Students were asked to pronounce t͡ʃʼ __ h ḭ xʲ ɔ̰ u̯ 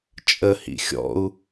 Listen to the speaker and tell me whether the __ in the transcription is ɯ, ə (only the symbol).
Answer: ə